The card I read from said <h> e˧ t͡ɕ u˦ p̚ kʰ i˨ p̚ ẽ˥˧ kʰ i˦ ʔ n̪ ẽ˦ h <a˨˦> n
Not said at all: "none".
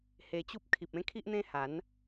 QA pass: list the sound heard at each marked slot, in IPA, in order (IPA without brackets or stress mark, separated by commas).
h, a˨˦